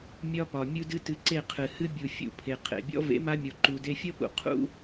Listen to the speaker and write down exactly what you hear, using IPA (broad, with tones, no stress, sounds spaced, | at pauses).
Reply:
mʲ ɒ˦ p ɒ˨ mʲ u˦ d ɨ˦ t ɨ˧ ǀ e˦˨ qʰ ɨ˨ h ɨ˦ bʲ u˨ fʲ ṵ˧ pʰ e˨ qʰ ḛ˨ bʲ ɔ̰˦ v ḛ˨˦ m a˧ mʲ ɔ˨ ǃ u˨ d e˧ fʲ ʌ˦ p ṵ˨ qʰ ṵ˦